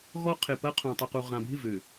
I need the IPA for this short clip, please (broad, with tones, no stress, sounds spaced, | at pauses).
ɣ ɔ˦ qʰ ɪ˨ p ɐ˦ qʰ ũ˨ tˤ ʊ˨ q u˨ ʁ ã˨ bʱ ɪ˦˨ v ø˨